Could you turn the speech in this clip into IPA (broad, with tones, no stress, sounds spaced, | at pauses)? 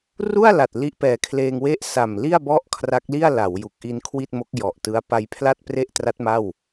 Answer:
r u˥˩ a̯ l a˨˩ t̚ l i˦˥ ʔ p ɛː˨˩ kʰ l eː˧ ŋ w e˥˩ ʔ s a˨˩ m l i˥˩ a̯ b ɔ˥˩ ʔ kʰ r a˦˥ k̚ l i˥˩ a̯ l a˩˦ w j u˨˩ k̚ ʔ i˧ n kʰ w i˥˩ t̚ m o˦˥ k̚ j ɔ˨˩ ʔ t ɯ˦˥ a̯ p a˧ j pʰ l a˥˩ t̚ p r e˥˩ ʔ t r a˦˥ t̚ m a˥˩ w